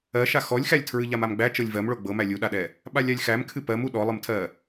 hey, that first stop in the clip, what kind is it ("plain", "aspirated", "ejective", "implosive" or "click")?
aspirated